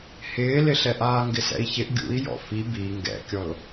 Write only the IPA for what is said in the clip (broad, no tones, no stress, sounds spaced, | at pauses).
h ɪː l ɪ ɬ ɛ ʔ aː ŋ ɡ ɪ s ɛ̰ i̯ ç ɪ ʔ ɡʲ ṵ i̯ j ɔ̰ f i b i ŋ ɡ ɛ̰ kʲ ɔ l